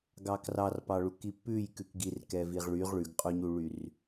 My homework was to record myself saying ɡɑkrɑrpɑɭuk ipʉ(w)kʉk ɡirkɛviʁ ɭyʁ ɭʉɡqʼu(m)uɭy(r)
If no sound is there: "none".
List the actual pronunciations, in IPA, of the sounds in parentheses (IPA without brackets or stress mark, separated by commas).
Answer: j, ɲ, r